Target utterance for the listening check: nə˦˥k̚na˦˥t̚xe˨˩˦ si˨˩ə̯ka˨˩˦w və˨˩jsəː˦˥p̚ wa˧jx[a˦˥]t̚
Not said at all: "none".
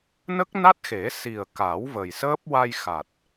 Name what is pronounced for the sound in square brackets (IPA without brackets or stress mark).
a˨˩